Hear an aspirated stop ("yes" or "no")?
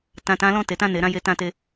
no